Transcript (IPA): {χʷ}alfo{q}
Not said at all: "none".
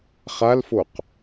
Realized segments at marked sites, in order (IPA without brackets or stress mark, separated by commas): χ, q